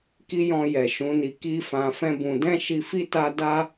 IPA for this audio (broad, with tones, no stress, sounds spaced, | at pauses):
k i˦ j ɔ̃˧ j ɛ˨ ʃ ũ˨˦ n i˧ k i˦ f ã˧ f ɛ̃˦ b ũ˧ d ɛ̃˦ ʃ i˧ f i˦ t a˦ d a˦